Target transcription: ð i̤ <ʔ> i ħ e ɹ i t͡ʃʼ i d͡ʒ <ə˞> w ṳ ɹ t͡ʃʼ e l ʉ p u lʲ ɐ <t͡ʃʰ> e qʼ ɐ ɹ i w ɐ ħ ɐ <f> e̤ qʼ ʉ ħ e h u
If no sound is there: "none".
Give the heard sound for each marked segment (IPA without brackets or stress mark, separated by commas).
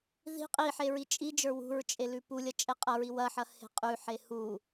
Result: qʼ, ə˞, t͡ʃʼ, h